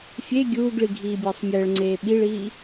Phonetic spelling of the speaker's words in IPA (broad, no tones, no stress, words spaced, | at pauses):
fʲe ɡʲuːɡɭi ɡʱiːbʲəːsˤmʲəːɭŋ͡ǀeː ɓiɭiː